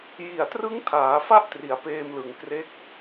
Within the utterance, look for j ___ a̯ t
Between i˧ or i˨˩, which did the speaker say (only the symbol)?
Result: i˨˩